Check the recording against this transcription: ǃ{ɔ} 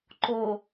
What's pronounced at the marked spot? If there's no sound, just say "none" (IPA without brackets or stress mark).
o